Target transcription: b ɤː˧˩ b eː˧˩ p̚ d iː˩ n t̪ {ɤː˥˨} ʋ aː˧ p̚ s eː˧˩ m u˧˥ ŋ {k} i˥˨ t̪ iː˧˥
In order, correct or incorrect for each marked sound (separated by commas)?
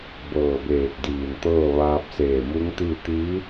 correct, incorrect